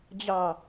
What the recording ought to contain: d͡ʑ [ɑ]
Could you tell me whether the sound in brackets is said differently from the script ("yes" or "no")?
no